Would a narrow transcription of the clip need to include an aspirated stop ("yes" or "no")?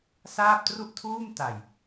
yes